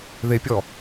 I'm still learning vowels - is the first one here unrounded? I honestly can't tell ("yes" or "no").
yes